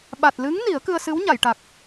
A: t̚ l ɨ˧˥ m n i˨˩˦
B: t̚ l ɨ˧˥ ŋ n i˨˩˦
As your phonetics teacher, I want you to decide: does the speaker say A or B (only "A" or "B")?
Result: B